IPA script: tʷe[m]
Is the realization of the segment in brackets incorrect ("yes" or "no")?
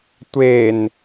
yes